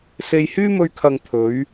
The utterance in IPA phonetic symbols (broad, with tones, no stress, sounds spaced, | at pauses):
s e˧ j h yː˥ m ɵ˧ ɥ kʰ ɐ˨ ŋ t̪ʰ ɵ˨˧ ɥ